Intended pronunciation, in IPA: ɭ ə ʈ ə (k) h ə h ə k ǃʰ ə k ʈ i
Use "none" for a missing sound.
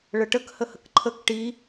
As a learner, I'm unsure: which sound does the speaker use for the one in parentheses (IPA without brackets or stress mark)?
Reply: k